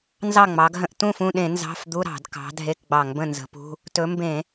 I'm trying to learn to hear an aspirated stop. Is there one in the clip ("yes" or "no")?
no